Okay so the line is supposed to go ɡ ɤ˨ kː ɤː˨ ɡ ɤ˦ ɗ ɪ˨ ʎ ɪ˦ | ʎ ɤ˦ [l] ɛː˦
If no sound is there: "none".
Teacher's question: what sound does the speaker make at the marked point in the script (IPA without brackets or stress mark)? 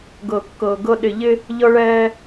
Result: ɭ